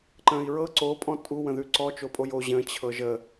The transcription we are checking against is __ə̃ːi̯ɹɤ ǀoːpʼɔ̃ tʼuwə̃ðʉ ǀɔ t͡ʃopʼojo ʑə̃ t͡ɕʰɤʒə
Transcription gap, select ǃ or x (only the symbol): ǃ